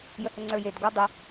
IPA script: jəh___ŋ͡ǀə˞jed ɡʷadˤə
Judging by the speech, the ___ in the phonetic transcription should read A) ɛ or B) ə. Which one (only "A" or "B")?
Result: B